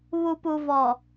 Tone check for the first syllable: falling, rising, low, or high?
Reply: low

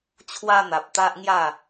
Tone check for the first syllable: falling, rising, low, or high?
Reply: high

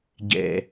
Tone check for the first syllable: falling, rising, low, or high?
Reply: low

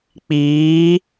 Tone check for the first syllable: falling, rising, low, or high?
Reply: rising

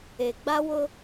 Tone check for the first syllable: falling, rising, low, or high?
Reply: low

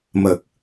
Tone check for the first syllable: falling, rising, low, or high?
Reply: low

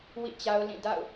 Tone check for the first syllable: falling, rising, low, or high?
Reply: falling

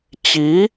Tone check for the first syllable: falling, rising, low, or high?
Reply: rising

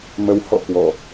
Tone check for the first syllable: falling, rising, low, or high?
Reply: rising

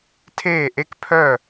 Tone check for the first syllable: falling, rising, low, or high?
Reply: falling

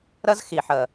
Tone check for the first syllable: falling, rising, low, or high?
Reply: high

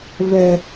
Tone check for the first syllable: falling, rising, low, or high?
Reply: high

